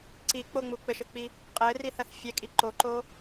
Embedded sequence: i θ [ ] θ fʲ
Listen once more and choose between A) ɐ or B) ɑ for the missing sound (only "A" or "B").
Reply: A